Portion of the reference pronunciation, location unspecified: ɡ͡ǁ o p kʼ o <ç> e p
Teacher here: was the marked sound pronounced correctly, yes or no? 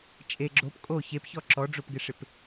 yes